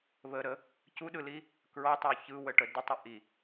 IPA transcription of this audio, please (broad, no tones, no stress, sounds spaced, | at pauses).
β ə ɾ ə | c u ɗ ɯ l i | k ɹ ɔ tˤ u ç ɯ w ə ʈ ə d ə tˤ ə ʔ i